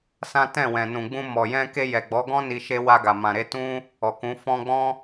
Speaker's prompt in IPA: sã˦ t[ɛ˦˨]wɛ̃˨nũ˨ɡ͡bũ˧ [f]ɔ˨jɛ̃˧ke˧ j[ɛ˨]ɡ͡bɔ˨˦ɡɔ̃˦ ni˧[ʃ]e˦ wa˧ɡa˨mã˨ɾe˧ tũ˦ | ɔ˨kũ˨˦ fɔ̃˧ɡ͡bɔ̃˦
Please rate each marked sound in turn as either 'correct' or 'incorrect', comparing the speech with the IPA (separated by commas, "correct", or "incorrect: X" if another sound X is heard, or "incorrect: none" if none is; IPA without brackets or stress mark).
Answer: incorrect: ɛ̃˦˨, incorrect: m, correct, correct